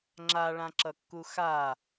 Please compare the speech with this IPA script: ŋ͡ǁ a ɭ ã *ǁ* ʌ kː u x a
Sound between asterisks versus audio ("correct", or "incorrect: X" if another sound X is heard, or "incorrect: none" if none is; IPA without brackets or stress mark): correct